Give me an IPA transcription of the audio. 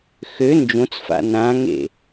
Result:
x ø n d͡ʒ õ t͡s f a̰ n ã ŋ ḛ

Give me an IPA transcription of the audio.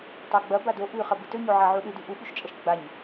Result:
tˤ a ɡ͡b ɐ b a d o ʔ ʉ χ ɐ b ɨ t ɵ ɲ o ʕ a ʕ u ɗ ɨ d ʉ ʔ u ɓ ʉ ʃ t͡ʃʼ ɐ ʃ ɡ͡b a ɲ

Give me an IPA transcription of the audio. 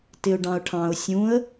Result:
t ɪ ʊ̯ ɖ ɑ̃ ʊ̯ ʈʰ ɑ̃ ʊ̯ sʲ ũ ə̯

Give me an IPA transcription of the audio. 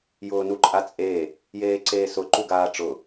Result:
j ʊː n u ǃʼ a t͡sʼ e | j eː ǀ eː s ʊ ǃ u ɡ aː ʈ͡ʂ ʊ

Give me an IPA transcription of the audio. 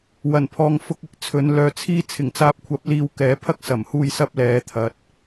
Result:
w ɐ˨˩ n pʰ ɔː˨ ŋ f ʊ˧ k̚ ɪ˥ k̚ t͡sʰ ɵ˨˧ n l œː˨ t͡sʰ iː˥ t͡sʰ ɪ˨˩ ŋ t͡s aː˨ p̚ kʷʰ ɐ˨˥ p̚ l iː˧ w k ɛː˨˥ pʰ ɐ˥ k̚ s ɐ˨˩ m h uː˧ j s ɐ˥ p̚ l ɛː˨˥ t̪ʰ ɐ˨ t̚

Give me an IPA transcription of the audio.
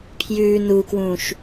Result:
pʰ j ʉː n u k w ũː ʃ

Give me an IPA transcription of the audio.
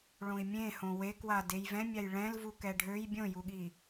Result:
ɭ õ i̯ mʲ ẽ h õ w e k w a d e j v ɛ̃ mʲ a j ɭ ɛ̃ l v u k ɛ ɖʱ ø j bʲ õ j u ɠ i

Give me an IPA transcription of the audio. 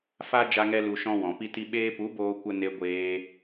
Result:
f a˦ d͡ʒ a˦ ŋ ɛ˦ l u˧ ʃ ɔ̃˦ w ɔ̃˨ p i˦ t i˦ ɓ eː˧ p u˨˦ b oː˧ kʷ ə˧ n e˧ ɡʷ eː˧

